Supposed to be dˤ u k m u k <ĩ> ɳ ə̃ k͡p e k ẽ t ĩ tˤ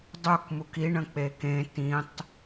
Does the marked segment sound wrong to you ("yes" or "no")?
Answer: yes